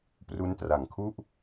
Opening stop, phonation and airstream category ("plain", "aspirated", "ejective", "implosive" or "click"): plain